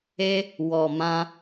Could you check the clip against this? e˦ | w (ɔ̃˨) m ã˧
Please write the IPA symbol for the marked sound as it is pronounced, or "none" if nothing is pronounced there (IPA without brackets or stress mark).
ɔ˨